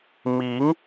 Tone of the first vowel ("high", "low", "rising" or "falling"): rising